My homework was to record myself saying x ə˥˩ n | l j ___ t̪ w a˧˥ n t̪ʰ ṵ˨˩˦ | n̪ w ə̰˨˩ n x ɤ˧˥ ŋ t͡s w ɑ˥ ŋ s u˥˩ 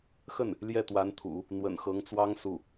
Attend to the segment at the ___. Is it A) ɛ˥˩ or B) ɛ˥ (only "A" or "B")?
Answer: A